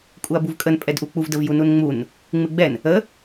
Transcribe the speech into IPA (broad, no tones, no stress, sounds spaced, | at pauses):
kʼ u ɐ̯ b u v kʼ ə n pʼ ɛ d ʔ u k͡p u v d ə v j u n u n ŋ͡m u n | ŋ͡m ɨ ɡ͡b ɛ n | ə